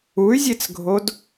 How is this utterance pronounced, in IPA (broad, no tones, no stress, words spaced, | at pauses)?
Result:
uy̯zʲet͡sɡʱod